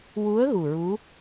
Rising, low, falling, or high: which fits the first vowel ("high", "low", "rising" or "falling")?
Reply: rising